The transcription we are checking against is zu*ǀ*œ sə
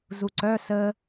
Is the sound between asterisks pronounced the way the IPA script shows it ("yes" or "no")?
yes